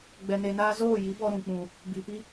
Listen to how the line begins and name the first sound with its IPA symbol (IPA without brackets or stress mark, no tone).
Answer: ɡ͡b